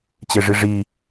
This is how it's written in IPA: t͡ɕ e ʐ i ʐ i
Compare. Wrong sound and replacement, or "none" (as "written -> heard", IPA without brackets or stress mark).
none